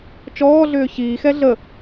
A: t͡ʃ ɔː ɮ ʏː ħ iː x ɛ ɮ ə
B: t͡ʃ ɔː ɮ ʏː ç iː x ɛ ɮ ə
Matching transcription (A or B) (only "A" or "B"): B